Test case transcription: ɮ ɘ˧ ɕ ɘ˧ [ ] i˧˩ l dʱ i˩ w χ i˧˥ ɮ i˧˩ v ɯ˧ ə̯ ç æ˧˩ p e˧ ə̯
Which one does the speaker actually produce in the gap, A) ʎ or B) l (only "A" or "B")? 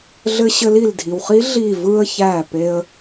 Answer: B